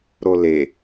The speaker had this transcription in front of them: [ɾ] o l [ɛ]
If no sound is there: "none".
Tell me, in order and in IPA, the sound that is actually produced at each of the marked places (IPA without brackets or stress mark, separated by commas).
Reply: ɾ, e